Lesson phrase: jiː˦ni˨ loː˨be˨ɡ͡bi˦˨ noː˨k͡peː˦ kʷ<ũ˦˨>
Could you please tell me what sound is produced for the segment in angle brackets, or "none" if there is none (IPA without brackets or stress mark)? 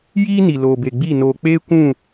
ũ˦˨